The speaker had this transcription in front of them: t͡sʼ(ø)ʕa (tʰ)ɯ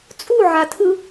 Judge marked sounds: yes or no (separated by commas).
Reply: no, yes